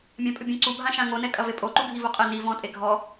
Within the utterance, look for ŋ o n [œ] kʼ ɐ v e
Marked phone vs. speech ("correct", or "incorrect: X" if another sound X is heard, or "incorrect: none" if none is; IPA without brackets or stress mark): incorrect: ɛ